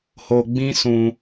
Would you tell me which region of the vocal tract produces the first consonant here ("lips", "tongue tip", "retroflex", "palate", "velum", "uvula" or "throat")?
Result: throat